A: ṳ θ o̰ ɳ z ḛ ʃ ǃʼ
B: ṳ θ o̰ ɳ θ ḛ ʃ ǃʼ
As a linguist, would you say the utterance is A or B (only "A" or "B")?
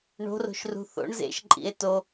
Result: A